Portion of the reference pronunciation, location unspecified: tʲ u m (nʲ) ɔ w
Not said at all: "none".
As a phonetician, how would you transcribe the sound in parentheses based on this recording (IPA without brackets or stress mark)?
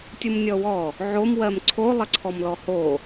nʲ